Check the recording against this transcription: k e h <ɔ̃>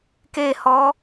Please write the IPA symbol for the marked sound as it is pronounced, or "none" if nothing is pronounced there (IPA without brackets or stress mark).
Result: ɔ